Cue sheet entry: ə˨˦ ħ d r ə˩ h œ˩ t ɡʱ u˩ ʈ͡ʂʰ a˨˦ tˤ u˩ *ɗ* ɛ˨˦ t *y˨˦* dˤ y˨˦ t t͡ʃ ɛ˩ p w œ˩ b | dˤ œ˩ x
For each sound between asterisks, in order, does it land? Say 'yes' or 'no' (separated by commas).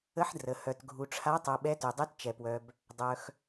no, no